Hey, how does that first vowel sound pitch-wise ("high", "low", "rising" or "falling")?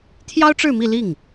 high